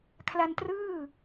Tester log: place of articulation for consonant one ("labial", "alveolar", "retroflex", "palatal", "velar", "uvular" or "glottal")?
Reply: velar